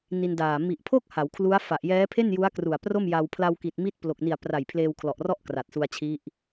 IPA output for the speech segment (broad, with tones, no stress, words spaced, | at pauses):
ni˧ndaː˨˩ mi˨˩ʔpʰo˥˩k̚ ha˩˦wkʰlu˦˥a̯fa˨˩ʔ jɛː˦˥pʰe˥˩nju˦˥a̯ kru˨˩a̯pro˥˩m ja˧w pʰla˧wki˨˩t̚mi˦˥t̚ plo˨˩k̚ni˨˩a̯pra˨˩j pʰleː˧wkʰlɔ˨˩ʔrɔ˥˩ʔ kra˨˩t̚su˧a̯t͡ɕʰi˦˥ʔ